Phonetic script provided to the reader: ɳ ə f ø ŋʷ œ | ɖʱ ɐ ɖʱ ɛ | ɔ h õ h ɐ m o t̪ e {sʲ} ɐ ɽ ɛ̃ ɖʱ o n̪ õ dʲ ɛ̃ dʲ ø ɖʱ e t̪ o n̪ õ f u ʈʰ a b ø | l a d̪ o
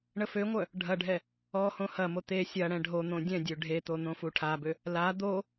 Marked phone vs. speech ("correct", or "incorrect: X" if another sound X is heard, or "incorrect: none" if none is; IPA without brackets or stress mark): correct